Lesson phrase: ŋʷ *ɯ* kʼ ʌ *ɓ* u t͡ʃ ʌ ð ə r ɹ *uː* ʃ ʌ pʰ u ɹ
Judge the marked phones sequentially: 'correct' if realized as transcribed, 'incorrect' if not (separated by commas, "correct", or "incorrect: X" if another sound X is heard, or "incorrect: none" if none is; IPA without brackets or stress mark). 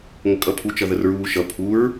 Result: incorrect: ə, incorrect: pʰ, correct